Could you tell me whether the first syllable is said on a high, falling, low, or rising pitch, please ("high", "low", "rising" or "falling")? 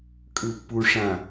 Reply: low